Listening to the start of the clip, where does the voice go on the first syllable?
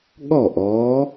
falling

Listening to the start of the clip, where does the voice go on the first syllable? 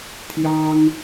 high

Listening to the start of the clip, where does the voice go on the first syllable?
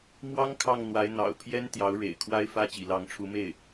high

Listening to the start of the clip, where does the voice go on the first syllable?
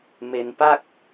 low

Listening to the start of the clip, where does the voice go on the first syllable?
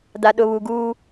low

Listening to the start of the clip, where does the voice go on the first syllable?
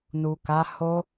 low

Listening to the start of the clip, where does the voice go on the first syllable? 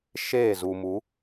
falling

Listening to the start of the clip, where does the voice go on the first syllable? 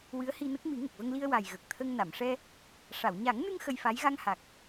rising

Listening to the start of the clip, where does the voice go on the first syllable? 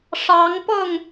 rising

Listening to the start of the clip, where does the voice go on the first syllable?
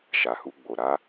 low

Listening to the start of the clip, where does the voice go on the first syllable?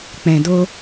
low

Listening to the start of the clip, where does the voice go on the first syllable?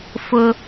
high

